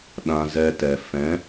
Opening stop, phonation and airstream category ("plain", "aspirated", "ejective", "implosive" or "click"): implosive